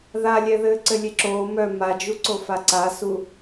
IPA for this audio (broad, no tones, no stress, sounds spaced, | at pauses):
ð a lʲ ɛ ð ɘː ǀ ɘ lʲ e ǁ oː m œ m a d͡ʒ u ǀ o f a ǀ a s u